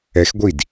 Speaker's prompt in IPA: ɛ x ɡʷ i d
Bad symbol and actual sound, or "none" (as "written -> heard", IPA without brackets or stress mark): none